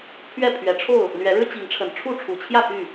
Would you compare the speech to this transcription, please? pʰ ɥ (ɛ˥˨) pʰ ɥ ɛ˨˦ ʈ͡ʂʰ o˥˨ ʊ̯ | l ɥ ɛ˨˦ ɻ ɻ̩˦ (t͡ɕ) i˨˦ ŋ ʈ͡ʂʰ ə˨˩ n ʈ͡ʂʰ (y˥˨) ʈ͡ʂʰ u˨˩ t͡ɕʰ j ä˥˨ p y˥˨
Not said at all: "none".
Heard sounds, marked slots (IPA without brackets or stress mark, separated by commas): ɛ˥˨, t͡ɕ, u˥˨